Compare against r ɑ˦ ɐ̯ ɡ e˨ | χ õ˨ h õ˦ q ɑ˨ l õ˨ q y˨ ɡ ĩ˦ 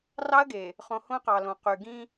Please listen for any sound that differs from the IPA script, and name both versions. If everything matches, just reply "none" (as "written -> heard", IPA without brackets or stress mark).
none